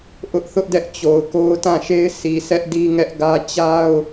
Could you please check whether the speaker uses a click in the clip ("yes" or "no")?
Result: no